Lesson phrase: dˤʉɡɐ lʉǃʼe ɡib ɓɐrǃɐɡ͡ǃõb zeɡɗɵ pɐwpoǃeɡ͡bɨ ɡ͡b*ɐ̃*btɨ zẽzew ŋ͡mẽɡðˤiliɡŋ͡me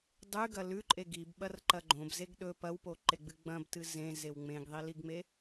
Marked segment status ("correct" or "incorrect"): correct